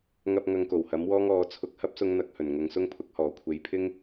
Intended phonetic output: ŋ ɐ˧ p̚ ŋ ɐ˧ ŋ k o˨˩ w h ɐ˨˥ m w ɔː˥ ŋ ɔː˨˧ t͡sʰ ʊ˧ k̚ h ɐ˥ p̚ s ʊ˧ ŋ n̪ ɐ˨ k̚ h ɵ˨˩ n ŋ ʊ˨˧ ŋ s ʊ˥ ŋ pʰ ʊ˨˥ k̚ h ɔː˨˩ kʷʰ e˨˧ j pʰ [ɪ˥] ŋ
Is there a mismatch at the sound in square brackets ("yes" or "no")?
no